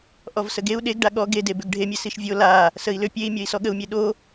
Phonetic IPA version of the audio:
ʔ ɔ v s ə ɡ e u̯ ɗ e ɡ ɖ a ɠ ɔ ɡ e d e b ʏ ɡ ɖʱ e mʲ e s i ʃ vʲ o l a | s ə i̯ l ʏ pʲ e i̯ mʲ ɔ i̯ s ɔ ɠ ə u̯ mʲ e ɗ o

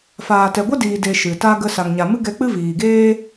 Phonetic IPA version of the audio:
f aː˨ t ɛ˨ ɡʷ a˦ d iː˨ d e˧ ʃ ɨ˨ t a˦ ɡ ə˧ s a˨ ŋ ɲ a˨ m ɨ˦ ɡ ɛ˧ k͡p ɨ˦ v iː˨ ɡ eː˦

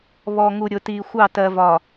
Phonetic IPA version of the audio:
β ɔ˨ ŋ u˨ ɾʲ ʊ˨ t i˨ xʷ ɑ˦˨ t ɜ˨ v ɒ˨

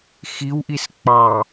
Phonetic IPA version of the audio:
x i w ʔ i s k͡p ɑ

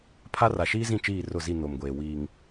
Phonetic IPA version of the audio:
pʰ a˦ r a˨ ʃ iː˦ z ĩ˦˨ t͡ʃ iː˦˨ r ʊ˦˨ z i˦˨ n o˨ m ɡʷ eː˨ w iː˨ ŋ

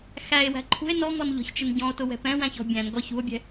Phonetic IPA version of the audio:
x æ e̯ w æ̤ ǃʰ ṳ e̯ n ɔ ŋ ɔ n ʎ ɔ̤ ç t͡ʃ ɪ n ɟ ɔ̃ o̯ t ʊ w ɛ̤ p ɛ̃ w æ̃ ç ɔ̤ bʲ æ̃ n ɡ ɔ ç ṳ o̯ bʲ ɛ̤

